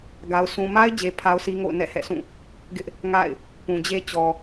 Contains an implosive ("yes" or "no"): no